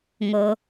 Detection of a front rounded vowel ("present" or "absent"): absent